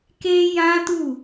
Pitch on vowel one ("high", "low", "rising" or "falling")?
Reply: high